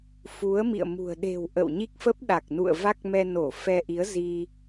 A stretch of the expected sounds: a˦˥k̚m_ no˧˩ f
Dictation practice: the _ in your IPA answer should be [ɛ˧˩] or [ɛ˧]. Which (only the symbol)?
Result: ɛ˧